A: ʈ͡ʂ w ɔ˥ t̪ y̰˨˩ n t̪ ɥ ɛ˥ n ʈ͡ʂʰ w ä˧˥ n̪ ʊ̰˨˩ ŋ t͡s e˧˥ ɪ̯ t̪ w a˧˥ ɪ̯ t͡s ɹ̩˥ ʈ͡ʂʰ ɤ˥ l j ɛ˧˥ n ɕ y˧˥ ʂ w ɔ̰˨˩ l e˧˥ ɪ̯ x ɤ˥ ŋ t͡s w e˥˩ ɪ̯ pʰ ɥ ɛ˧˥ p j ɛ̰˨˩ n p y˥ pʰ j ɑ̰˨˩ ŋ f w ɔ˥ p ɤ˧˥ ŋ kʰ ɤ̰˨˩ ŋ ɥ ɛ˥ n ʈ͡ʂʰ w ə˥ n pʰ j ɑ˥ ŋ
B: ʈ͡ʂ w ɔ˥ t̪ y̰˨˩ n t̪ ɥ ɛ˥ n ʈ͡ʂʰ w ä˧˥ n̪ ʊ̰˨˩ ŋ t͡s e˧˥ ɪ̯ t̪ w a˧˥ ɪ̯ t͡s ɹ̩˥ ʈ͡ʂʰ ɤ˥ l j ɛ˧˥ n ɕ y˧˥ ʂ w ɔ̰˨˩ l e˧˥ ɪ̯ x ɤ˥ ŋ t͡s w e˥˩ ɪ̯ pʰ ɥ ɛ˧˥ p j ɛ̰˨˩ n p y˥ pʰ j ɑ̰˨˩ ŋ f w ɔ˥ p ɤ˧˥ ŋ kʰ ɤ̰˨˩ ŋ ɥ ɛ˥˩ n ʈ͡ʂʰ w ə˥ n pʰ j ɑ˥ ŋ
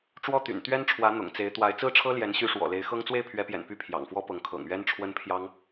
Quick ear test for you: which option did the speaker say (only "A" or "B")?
A